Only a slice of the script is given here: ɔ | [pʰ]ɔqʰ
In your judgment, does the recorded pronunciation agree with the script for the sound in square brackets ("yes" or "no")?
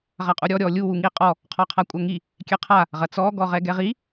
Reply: no